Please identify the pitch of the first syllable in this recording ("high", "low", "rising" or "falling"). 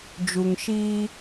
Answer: low